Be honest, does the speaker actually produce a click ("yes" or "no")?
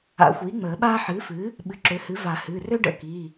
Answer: yes